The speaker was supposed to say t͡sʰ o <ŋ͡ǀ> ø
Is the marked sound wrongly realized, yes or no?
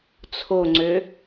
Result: no